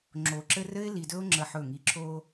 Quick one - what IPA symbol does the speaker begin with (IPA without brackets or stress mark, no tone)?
ŋ͡ǁ